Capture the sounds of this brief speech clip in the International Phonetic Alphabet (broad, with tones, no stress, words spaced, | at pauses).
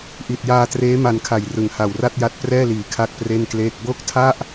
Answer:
ʔi˨˩t̚jaː˧treː˦˥ ma˧nkʰa˨˩jrɯ˨˩ŋha˨˩w ra˥˩t̚ja˦˥t̚prɛː˥˩liː˨˩ kʰa˥˩k̚pre˥˩nkleː˥˩k̚ bo˥˩k̚tʰa˥˩ʔ